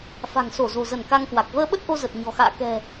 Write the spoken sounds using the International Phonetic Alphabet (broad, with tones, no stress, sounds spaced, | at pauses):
f a̤˨˩ ŋ s o˧˩ z o̤˨˩ z ə˧˩ n k a˧ ŋ k w a˨˩ k̚ v əː˧ ɓ ə˦˥ t̚ ʔ o˧ z ə˨˩ t̚ ɲ ɔ̤˨˩ x a̰ː˧˨ k ɛ̤˨˩